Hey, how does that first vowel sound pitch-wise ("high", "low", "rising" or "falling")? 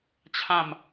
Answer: falling